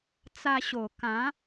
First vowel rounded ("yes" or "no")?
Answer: no